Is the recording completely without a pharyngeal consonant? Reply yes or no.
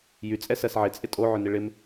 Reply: no